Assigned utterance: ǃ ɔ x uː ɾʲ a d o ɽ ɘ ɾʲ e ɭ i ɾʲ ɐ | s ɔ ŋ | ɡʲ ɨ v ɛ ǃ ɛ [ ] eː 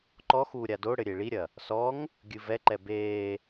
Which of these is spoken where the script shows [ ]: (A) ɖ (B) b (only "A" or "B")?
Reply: B